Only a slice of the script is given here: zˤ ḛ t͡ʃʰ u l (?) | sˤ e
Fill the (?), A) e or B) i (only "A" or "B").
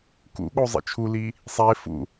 B